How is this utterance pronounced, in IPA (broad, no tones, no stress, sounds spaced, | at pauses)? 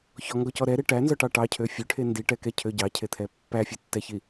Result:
ç ɔ ŋ ɡ ɔ c ɔ ɾ ɛ ɾ e ʈ æ n z ɔ ʈ ɑ ʈ ɑ cʰ ø fʲ ø ʈʰ e n d i ʈ ɛ k ɛ cʰ ø ɟ ɑ cʰ e t̪ʰ ɛ pː æ fʲ e tː ɛ ç i